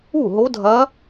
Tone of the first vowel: falling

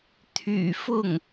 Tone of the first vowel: low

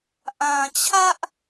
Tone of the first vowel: low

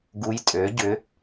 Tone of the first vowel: rising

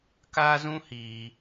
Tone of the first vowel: high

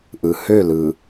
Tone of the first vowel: low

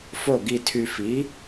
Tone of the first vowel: falling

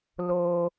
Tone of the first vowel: high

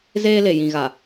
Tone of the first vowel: high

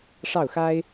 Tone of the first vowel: falling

